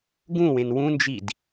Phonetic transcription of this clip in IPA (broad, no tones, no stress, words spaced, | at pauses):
ɡũwẽn wũnd͡ʒid